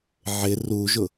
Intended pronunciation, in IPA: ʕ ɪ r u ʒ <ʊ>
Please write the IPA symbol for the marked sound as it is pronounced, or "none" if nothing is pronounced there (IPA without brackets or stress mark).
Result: ʊ